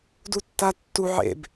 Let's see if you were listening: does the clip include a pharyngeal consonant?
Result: yes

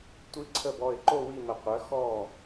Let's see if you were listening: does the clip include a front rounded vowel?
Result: yes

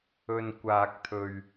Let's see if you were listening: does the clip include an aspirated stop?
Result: yes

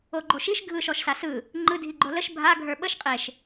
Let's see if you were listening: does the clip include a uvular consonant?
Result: yes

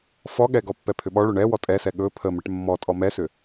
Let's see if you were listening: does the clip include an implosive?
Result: yes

